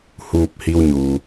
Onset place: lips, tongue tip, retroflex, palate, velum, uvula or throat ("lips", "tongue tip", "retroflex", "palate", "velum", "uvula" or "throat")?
throat